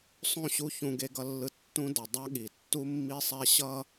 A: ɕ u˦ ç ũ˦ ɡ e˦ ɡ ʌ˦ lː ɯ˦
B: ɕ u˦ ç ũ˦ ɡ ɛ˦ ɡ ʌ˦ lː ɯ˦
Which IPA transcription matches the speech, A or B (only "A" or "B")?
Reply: A